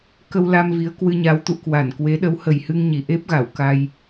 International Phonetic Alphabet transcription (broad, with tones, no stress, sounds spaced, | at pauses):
k ə˧ w l a˧ m v i˨˦ ə̯ k w ɨ˧ ɲ a˨˦ w t̪ ṵ˧˨ k w a˧˩ n k w e˨˦ ɗ ə˨˦ w h ə˨˩ j h ɨ˧ ŋ ɲ i˧˩ ʔ e˦˥ p̚ ɣ a˧˩ w k a˧ j